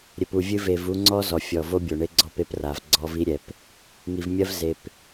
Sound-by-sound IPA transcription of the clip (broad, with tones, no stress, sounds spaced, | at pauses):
ɾʲ ɘ˨ p u˨ vʲ ɨ˧ v e˨ v u˧ ŋ͡ǀ ɔ˦ z ɔ˨ fʲ ɔ˨ v o˦ bʲ o˨ ɳ e˧ ɡ͡ǀ ɔ˦˨ p e˦ p r a˨ v ɡ͡ǀ ɔ˧ v i˦ ɾʲ ɛ˨ p | ŋ i˨ v mʲ ɐ˦ v z e˨ p